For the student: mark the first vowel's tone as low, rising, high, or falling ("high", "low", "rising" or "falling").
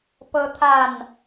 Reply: high